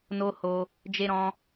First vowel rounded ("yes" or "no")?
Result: yes